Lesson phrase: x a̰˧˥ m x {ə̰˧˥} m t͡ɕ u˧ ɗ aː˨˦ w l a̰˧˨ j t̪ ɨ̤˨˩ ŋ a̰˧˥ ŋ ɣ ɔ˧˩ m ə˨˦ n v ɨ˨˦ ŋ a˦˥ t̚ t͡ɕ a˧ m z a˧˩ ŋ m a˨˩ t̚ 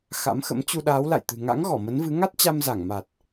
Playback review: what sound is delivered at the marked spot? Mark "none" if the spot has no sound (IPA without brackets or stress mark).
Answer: ə̰˧˥